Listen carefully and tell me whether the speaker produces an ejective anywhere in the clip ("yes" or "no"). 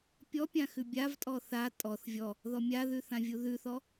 yes